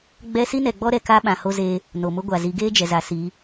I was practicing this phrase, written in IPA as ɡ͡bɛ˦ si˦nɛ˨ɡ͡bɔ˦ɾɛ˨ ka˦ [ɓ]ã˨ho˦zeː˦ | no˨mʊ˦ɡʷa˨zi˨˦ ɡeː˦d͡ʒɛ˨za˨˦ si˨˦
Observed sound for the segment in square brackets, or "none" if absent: ɓ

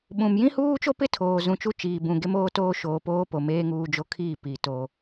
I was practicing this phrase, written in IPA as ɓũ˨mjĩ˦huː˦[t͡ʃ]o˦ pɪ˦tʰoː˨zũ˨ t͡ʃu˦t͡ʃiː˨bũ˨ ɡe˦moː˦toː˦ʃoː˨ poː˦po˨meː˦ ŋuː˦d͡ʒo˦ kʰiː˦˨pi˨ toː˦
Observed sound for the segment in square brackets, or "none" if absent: t͡ʃ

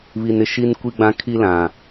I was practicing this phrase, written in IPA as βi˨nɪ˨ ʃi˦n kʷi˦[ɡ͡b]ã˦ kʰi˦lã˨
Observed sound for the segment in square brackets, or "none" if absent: ɡ͡b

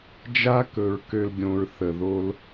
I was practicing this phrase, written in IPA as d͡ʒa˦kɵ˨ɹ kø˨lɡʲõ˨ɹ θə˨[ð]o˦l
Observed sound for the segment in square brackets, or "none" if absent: ð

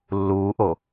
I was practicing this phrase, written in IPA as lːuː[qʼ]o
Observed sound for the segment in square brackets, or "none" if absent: ʔ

